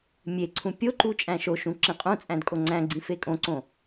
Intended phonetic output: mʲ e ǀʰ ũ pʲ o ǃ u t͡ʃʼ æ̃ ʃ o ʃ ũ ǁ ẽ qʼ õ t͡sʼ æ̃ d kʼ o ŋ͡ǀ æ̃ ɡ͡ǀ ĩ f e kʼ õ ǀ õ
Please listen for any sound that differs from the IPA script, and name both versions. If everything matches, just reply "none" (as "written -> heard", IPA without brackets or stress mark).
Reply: none